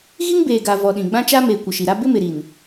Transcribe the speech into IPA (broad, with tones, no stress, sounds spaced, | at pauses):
ɣ i˦ ŋ b eː˨ ɡ a˨ v ɔ˨ ɗ ĩ˨ ɡ͡b ã˦ t͡ʃ a˦ m eː˨ kʷ ɪ˨ ʃ i˨ ɾ a˦ b ɪ˦ m ɪ˨ ɾ i˨ n